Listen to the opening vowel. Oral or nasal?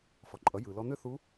oral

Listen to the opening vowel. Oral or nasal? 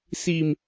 oral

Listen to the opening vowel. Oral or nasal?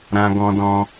nasal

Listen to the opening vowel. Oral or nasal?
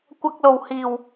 oral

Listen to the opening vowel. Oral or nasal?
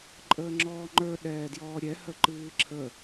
oral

